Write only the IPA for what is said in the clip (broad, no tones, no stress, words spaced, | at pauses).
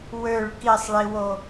wøɭ kisˤɭiwo